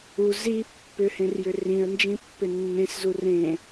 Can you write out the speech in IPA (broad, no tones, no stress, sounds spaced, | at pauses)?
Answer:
u z i pː ʏ h ẽ r j ʏ r ĩ ə̯ n d͡ʒ ĩ pː ʏ nː ẽ s z u r ẽ